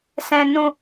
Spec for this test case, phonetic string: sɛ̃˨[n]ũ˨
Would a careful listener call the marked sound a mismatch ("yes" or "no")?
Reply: no